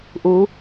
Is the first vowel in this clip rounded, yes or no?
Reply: yes